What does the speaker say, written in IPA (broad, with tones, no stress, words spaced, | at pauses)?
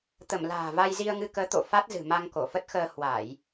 t̪ə˧˩m la̤ː˨˩va˧j zi˧ə̯ŋɨ˧kəː˨˦t̪o̰˧˨ fa˦˥t̚zɨ̤˨˩ ma˧ŋko˧˩fə˦˥t̚xəː˧ hwa˧˩˨j